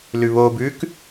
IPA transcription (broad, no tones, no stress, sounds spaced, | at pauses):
l ʉ β o b ʉ k